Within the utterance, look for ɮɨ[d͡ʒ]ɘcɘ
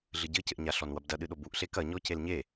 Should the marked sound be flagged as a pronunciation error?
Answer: yes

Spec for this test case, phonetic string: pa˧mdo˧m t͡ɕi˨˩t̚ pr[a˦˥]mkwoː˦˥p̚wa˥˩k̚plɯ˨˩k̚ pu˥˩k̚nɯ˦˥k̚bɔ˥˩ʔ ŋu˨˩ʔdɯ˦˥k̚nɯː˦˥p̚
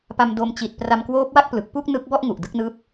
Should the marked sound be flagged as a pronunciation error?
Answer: yes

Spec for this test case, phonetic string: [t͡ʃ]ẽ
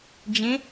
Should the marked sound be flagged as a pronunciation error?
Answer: yes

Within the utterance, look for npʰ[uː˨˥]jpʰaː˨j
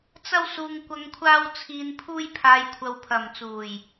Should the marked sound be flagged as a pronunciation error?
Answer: yes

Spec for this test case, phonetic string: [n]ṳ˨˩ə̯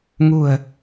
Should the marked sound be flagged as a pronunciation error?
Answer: yes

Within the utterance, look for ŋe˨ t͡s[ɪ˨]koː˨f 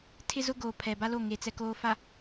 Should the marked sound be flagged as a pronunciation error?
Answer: yes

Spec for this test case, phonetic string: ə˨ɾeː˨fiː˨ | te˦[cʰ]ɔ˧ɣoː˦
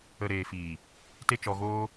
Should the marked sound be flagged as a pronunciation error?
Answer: yes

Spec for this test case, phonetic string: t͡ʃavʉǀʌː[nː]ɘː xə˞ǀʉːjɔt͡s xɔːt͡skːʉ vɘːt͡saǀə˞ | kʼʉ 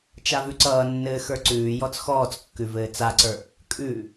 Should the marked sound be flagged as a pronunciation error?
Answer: no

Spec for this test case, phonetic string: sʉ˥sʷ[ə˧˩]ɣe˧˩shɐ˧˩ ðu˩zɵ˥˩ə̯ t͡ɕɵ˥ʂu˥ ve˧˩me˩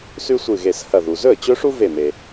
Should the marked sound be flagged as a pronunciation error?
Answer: yes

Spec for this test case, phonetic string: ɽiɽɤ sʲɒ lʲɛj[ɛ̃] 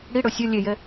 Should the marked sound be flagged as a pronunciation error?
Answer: yes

